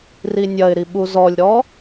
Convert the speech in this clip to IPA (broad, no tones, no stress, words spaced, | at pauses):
rinʲɐɪ̯ɾi ɓuzɔlʲɾɔ